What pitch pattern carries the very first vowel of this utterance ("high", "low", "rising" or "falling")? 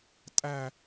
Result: falling